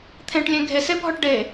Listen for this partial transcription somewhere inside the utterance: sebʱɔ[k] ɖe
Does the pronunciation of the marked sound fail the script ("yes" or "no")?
yes